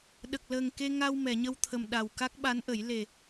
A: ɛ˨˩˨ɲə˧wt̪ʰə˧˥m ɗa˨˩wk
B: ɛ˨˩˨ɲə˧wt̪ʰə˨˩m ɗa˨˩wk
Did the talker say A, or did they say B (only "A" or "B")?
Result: B